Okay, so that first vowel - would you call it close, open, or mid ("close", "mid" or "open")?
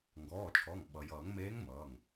mid